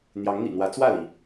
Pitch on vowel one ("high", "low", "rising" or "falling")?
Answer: rising